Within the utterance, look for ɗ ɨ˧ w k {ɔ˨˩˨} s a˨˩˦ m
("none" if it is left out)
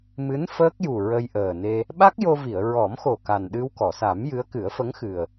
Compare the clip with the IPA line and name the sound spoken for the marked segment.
ɔ˨˩˨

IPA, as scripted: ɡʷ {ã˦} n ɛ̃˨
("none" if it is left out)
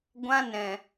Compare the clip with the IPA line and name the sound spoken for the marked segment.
ã˦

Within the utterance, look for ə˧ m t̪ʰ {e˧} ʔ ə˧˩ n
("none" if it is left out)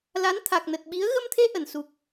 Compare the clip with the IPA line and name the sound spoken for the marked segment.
e˧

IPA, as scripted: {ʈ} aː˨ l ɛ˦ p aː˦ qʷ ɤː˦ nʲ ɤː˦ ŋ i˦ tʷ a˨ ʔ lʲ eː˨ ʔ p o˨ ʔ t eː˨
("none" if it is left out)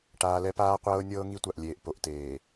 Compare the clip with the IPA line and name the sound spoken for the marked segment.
ʈ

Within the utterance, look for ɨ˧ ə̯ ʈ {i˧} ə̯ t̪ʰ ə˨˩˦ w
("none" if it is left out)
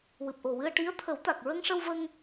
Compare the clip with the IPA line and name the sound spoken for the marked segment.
i˧˥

